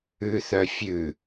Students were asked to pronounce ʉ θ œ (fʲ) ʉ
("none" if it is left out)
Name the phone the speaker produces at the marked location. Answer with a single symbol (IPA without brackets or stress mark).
fʲ